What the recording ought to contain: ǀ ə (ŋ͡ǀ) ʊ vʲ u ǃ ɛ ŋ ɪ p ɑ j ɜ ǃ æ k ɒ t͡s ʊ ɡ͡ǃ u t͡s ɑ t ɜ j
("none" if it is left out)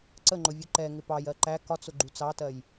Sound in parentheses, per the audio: ŋ͡ǃ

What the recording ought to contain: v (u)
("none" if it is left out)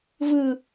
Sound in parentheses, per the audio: ɯ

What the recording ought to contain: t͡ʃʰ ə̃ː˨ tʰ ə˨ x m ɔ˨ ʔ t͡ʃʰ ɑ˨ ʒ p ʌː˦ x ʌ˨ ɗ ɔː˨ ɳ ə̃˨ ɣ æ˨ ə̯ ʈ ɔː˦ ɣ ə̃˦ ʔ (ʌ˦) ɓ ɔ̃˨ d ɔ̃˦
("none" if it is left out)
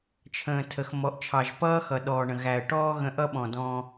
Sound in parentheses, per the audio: ʌ˦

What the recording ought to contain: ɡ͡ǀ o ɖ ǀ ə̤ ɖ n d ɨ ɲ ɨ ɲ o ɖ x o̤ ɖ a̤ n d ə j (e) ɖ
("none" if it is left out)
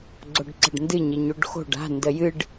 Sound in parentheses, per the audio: ɨ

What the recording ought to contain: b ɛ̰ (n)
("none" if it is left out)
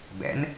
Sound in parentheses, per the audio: n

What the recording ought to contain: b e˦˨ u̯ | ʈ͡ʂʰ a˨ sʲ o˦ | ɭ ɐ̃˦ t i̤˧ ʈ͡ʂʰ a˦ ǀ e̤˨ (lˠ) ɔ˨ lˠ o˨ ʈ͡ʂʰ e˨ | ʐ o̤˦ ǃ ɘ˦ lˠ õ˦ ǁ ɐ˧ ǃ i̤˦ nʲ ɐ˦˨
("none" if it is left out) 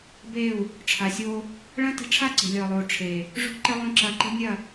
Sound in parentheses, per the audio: lʲ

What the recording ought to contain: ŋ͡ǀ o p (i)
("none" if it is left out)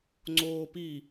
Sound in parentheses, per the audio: i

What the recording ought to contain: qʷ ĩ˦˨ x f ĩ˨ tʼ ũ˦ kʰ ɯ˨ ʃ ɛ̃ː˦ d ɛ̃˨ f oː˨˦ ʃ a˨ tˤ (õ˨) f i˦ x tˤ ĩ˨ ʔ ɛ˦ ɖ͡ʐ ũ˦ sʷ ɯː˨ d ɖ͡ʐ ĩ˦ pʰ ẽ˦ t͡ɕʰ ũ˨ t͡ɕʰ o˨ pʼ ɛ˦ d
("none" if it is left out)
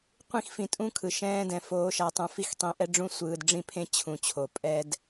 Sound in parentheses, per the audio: ũ˨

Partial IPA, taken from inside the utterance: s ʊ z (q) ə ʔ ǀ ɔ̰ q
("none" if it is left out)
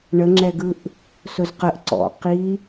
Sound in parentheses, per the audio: q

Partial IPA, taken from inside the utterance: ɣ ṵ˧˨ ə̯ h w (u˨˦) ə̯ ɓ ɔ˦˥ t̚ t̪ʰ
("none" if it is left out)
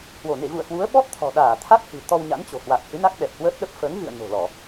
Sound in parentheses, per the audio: u˨˦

